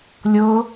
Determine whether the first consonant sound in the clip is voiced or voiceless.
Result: voiced